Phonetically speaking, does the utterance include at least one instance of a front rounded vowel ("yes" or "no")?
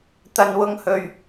no